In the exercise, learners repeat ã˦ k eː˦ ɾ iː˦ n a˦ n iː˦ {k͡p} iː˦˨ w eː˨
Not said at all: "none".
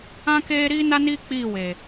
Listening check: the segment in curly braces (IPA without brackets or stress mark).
k͡p